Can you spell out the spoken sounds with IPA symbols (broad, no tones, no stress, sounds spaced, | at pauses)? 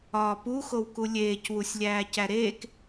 ɒː p u x o w k u lʲ eː c w u sʲ lʲ æː c æ ɾ eː k